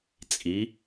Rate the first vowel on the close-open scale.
close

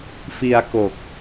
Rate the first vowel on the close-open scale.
close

